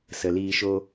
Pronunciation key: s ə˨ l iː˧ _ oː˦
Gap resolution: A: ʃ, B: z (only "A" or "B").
A